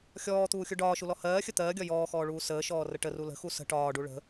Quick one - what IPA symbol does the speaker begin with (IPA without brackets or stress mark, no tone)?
xʲ